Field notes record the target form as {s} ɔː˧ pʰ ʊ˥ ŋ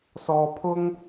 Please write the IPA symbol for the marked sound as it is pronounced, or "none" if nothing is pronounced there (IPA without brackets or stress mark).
s